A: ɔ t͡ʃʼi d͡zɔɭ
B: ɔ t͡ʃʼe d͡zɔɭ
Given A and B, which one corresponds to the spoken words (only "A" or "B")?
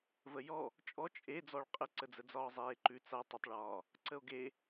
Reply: B